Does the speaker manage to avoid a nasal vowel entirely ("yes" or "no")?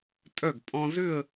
no